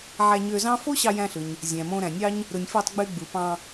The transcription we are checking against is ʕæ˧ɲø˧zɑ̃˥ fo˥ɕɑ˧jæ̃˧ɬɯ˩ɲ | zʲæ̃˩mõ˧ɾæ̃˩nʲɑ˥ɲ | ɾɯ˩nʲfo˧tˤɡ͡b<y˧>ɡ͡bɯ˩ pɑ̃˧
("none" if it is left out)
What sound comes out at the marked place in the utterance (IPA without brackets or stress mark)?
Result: y˧